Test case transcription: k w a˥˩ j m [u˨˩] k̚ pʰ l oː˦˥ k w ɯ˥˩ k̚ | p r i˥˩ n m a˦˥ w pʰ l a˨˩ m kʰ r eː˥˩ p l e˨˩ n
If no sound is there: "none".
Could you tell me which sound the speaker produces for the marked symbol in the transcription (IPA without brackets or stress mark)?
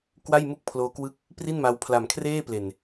u˥˩